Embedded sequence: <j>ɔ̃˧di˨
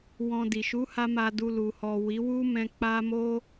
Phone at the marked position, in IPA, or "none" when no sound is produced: w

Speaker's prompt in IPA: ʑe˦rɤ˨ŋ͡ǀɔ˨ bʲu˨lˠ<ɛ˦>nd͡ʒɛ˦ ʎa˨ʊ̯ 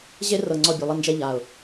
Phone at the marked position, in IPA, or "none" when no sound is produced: ɛ˦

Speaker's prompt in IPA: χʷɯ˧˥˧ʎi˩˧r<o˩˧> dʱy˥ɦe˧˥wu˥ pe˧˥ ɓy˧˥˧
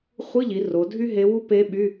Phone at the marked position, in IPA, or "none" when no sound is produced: o˩˧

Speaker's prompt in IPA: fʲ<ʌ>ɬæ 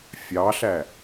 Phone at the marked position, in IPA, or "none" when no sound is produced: ɑ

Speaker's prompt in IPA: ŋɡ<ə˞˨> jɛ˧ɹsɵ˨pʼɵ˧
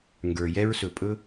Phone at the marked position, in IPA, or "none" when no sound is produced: ə˞˨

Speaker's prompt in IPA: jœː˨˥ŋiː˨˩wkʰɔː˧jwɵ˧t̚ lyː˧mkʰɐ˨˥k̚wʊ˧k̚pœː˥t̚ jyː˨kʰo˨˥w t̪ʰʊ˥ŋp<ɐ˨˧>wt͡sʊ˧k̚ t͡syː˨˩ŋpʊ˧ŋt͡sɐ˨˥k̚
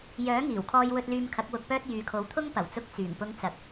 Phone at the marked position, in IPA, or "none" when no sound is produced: ɐ˨˩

